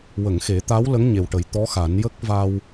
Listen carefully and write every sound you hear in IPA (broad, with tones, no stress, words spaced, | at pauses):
wə˨˩˨ŋxe˨˩˦ t̪a˧˥w lə˧˥ŋɲe˨˩wʈə˨˩˦j t̪ɔ˧˥xa˨˩˦n jə˦˥k̚va˧w